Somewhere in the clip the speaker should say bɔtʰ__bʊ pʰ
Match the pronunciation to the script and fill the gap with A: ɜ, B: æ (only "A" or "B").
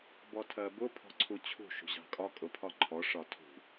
A